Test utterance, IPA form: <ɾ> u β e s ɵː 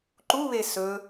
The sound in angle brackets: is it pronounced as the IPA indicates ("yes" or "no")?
no